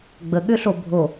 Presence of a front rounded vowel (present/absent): present